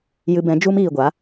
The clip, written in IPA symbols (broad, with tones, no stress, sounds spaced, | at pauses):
j ɨ˧ b ɛ̃˨˦ d͡ʒ u˦ m iː˨ ɡʷ a˨˦